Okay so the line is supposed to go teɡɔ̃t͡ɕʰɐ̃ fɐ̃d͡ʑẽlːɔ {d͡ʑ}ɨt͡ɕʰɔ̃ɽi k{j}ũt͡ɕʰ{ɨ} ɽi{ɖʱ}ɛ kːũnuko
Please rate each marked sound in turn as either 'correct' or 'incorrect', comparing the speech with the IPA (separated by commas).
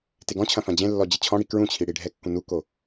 correct, incorrect, incorrect, correct